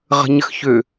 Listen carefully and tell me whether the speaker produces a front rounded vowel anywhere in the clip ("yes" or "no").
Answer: yes